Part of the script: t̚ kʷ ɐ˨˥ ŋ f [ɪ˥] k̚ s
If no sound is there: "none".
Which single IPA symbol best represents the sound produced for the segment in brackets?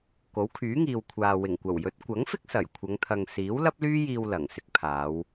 ɪ˥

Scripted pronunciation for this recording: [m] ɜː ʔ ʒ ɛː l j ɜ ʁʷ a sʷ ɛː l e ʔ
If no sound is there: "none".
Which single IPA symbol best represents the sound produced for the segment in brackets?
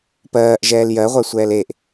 p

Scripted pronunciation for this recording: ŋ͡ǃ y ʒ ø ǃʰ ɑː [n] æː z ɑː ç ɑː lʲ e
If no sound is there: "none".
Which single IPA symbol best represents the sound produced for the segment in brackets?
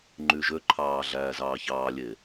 ɮ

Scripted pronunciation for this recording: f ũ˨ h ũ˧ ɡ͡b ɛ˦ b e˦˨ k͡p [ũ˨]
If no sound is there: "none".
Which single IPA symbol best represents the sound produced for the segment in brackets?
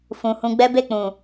ũ˨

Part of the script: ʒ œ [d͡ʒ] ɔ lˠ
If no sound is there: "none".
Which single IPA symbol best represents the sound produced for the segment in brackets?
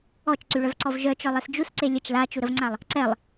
t͡ʃ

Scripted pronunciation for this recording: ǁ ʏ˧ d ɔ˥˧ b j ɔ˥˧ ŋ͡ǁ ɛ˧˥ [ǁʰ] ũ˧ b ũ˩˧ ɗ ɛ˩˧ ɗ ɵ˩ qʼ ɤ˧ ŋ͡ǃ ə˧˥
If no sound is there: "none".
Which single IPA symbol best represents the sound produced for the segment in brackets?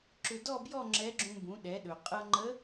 ɡ͡ǁ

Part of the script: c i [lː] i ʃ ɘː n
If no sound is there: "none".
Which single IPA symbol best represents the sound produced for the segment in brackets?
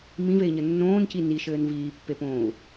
n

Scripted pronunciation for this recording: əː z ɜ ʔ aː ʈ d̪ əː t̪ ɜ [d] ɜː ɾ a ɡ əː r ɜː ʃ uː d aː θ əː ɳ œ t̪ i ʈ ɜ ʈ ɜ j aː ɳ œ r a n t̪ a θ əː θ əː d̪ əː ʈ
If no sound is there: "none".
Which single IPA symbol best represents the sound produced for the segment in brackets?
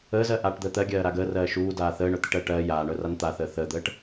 ɡʲ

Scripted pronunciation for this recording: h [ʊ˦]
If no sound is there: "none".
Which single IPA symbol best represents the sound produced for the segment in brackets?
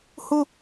ʊ˦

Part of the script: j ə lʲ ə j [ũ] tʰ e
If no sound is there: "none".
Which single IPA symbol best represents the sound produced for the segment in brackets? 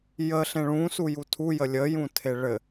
ũ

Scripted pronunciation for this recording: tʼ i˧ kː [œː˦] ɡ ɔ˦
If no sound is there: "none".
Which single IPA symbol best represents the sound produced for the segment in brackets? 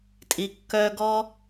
œː˦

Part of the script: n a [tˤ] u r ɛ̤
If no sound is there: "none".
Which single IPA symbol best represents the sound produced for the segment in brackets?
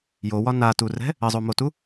t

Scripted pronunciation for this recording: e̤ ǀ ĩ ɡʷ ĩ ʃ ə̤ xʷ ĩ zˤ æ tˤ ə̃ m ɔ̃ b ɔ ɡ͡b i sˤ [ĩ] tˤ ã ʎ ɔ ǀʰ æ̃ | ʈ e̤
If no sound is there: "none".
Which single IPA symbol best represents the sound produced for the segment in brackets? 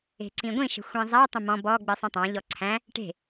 ĩ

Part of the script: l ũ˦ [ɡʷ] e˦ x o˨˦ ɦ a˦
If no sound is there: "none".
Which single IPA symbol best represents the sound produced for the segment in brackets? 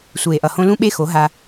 ɓ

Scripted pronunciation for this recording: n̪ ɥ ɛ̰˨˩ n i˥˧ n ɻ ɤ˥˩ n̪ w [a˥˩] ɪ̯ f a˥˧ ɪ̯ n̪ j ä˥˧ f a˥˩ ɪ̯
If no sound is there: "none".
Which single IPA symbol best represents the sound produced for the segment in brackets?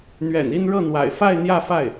a̰˨˩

